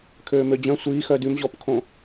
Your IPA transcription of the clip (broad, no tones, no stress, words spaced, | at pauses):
kʰøːmød͡ʑœ̃ sʷiːxœ dʉmʑɔpkʰõ